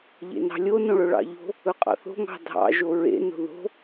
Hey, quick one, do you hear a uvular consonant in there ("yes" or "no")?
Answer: yes